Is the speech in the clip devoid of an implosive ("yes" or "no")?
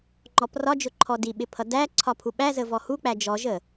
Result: no